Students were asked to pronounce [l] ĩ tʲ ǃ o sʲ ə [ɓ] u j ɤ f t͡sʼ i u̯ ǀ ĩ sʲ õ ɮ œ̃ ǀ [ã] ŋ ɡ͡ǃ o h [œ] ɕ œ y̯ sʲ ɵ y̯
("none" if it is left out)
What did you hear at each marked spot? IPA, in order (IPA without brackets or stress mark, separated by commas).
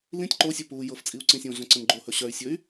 l, p, ə̃, ɵ